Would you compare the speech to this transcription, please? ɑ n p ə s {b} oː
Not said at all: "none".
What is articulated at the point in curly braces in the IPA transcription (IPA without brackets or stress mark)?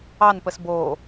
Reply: b